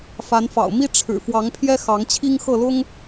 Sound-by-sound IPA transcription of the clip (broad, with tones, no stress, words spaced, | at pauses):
fa˨˦nfɑ̰˨˩ʊ̯ mi˦ ʈ͡ʂʰɻ̩˨˩ fwɑ˨˦ŋpʰjɛ˦ xɑ˨˦ŋt͡ɕʰi˦ŋ xɤ˥˨lʊ˦ŋ